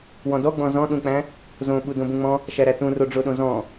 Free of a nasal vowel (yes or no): no